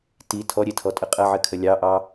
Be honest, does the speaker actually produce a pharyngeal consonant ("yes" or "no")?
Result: yes